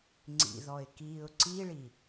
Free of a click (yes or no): no